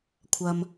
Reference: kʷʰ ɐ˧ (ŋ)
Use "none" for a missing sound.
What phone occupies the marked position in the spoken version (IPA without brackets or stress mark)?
m